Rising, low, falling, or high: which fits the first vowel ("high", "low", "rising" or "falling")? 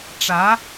rising